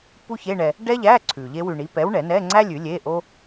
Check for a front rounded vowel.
absent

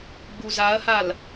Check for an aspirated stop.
absent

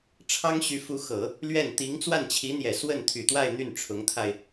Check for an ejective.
absent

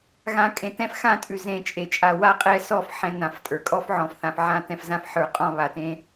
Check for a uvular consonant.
present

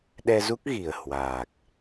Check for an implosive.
present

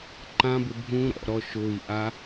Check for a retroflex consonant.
absent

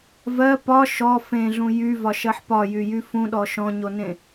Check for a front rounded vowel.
present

